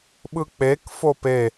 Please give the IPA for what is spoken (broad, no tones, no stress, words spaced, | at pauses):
ɓɯk͡pek fope